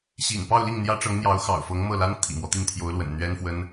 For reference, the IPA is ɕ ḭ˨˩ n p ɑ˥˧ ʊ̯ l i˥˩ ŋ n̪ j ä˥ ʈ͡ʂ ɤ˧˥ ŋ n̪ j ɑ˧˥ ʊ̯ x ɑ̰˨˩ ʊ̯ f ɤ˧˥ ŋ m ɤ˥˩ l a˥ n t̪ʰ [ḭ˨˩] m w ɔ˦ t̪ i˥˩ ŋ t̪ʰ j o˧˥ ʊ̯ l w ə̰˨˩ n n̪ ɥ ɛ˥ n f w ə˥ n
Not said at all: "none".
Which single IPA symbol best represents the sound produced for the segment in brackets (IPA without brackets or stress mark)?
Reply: ḭ˨˩